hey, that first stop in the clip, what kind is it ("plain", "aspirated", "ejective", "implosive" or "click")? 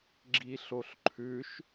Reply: click